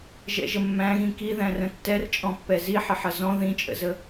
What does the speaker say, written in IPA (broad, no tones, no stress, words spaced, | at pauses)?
ʒɛ̰ʒəmːæ̃ɣĩ kiðæ̃rə̃ tːɛrt͡ʃʼɔ̃pːɛ ziħɪħʌ zɔ̃ ðĩt͡ʃʼə̰zə